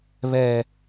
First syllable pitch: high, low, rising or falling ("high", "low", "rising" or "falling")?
low